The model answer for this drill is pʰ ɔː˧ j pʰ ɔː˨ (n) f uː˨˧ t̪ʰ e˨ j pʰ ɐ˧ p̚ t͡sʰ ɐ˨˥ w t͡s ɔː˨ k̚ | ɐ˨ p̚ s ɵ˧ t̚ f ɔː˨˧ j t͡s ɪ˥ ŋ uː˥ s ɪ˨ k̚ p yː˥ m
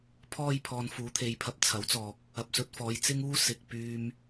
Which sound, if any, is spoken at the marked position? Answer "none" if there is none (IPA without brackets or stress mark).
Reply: n